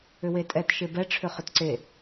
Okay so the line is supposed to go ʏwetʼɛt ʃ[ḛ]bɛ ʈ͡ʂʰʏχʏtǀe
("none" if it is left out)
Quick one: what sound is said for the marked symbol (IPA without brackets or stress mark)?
e